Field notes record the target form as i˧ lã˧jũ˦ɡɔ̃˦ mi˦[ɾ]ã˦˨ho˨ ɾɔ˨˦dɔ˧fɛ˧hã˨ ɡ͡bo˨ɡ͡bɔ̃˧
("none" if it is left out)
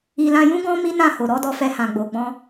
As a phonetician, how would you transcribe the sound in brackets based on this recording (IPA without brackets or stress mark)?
n